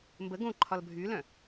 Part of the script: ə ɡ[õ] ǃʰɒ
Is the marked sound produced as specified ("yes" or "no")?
yes